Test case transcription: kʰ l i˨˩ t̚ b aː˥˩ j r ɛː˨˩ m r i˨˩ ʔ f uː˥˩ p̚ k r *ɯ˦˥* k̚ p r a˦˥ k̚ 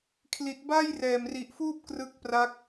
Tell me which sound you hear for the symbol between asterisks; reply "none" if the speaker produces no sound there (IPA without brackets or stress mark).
ɯ˦˥